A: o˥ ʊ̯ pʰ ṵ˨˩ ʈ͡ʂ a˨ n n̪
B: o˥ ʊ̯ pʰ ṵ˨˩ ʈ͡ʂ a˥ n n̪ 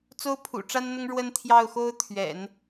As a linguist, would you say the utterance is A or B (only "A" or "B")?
B